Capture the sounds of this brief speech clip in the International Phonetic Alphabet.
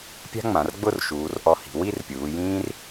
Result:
pʲ a̤˥ ŋ͡m ã˩˧ r ɡ͡b ʊ˥˧ r ʃ uː˩˧ r ʔ ɔ˧˩ h i̤˩˧ w i˥˧ r pʲ uː˩˧ j ĩː˥ r

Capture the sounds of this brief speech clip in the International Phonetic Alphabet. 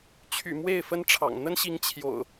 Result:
t͡ɕʰ y̰˨˩ m w e˥˨ ɪ̯ f ə˦ n ʈ͡ʂʰ ɑ̰˨˩ ŋ n̪ ə˦ n ɕ i˨˦ ŋ t͡ɕʰ j o̰˨˩ ʊ̯

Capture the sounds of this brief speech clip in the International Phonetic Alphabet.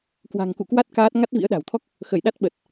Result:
k w a̤˨˩ ŋ k ṵ˧˨ k w a˦˥ t̚ k aː˦˥ t̚ ŋ a˦˥ t̚ v ḭ˧˥ ə̯ ɗ a̤˨˩ w t̪ʰ ɔ˦˥ k̚ | x ə˧˩ j ɗ a˦˥ t̚ ɓ ə˨˩ t̚

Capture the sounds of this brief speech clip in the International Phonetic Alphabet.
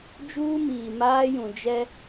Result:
d͡ʒ uː˦ m iː˨ m aː˦ j ũ˨ d͡ʒ ɛ˦

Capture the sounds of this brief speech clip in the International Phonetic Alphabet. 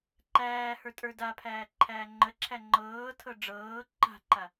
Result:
ǃ æː h ə˞ tʼ ə˞ d a pʰ æː ǃʰ æː ŋ͡ǃ ə ǁʰ æ ŋ͡ǃ ɤː tʰ ɤ ɖ͡ʐ ɤː ǃ a̤ ǃ a

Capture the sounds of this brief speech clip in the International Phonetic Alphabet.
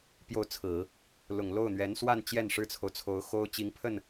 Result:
p j o˥˩ ʊ̯ t͡sʰ ɹ̩˨˩˦ | l ʊ˨˩ ŋ l o˥˩ ʊ̯ n̪ ɥ ɛ˧˥ n s w a˥˧ n t͡ɕ j ɛ˥˩ n ʂ ɻ̩˥ t͡sʰ o˨ ʊ̯ t͡sʰ o˧˥ ʊ̯ x o˥ ʊ̯ t͡ɕ i˧˥ ŋ pʰ ə˥˩ n

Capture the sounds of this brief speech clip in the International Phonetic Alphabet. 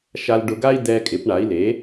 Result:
ʃ a˧ l ɖ ʊ˧ ɡ a˥ i̯ d ɛ˧ kʼ ɪ˩˥ p ɳ a˩˥ i̯ l e˩˥

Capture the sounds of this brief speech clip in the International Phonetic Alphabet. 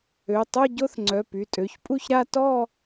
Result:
ø˩˧˩ tˤ o˥˧ ɟ o˥˧ θ ŋ͡ǀ œ˩˧˩ p y˩˧˩ tʼ ø˩˧˩ ç pʼ u˥˧ ç ɾ a˥˧ t ɔ˥˧

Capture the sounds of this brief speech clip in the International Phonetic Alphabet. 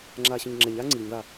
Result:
ŋ͡ǁ aː ɕ ɔ̃ ɲ ŋ͡ǁ ɛ ɲ aː ŋ͡ǀ ɨː ɲ ð a

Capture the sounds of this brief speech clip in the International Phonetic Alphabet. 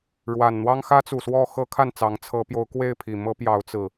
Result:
ɻ w a˨˩ n n̪ w ɑ˦ ŋ x ä˦ t͡s u˨˩ s w ɔ˥˨ x ɤ˦ kʰ a˥˨ n t͡s ɑ˨˦ ŋ t͡sʰ ɤ˨˦ p j o˨˦ ʊ̯ k w e˥˨ ɪ̯ pʰ i˨˩ m ɤ˦ p j ɑ˨˦ ʊ̯ t͡s ɹ̩˨˩

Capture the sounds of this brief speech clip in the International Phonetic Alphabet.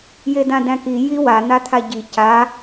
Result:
j e d ã d æ̃ k i j i w a n̪ a t̪ʰ a ɟ i c a

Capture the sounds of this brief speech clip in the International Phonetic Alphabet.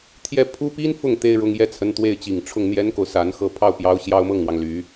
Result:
t̪ʰ j ɛ˥˩ pʰ u˥ p i˥ n f ʊ˥˩ ŋ t̪ e˥ ɪ̯ ɻ ʊ˧˥ ŋ j ɛ˥˩ t͡sʰ ə˧˥ n t̪ w e˥˩ ɪ̯ t͡ɕ i˨˩ ŋ ʈ͡ʂʰ ʊ˥˩ ŋ n̪ j ɛ˥ n k o˨ ʊ̯ s a˧˥ n x ɤ˥˧ pʰ ɑ˥˩ ʊ̯ p j ɑ˧˥ ʊ̯ ɕ j ɑ˥ ʊ̯ m ɤ˥˩ ŋ n̪ w ɑ˩ ŋ l y˨˩˦

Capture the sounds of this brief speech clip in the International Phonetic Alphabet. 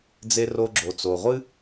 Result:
d͡z e˧ r o˧ ɡ͡ǁ o˩ t͡s o˩ ʁʷ ɨ˥

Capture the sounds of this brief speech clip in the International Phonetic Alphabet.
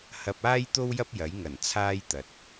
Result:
h ɐ˧ p̚ aː˥ j t̪ o˥ w j ɐ˥ p̚ j ɐ˨˥ j ŋ ɐ˨˩ n t͡sʰ aː˥ j t̪ ɐ˨ t̚

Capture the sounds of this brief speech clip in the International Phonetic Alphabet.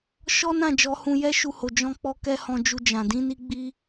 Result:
ʃ ɔ˦ n ã˦˨ d͡ʒ ɔ˧ h ũ˧ j ɛ˦ ʃ u˧ h o˨ d͡ʒ ɔ̃˧ k͡p ɔ˧ k ɛ˦ h ɔ̃˧ d͡ʒ u˧ d͡ʒ ã˨ d ĩ˧ n i˧ ɡ͡b i˧

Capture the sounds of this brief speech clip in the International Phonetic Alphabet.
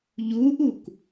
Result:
ʎ u ʔ u k

